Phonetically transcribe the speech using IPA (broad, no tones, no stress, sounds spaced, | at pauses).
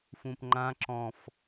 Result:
f ũ p ŋ͡ǃ ã ǁ ɔ̃ f